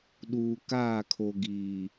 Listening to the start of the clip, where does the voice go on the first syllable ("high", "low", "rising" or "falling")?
low